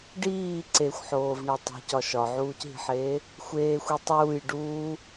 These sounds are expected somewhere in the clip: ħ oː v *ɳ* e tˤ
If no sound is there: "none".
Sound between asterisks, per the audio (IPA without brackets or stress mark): ɳ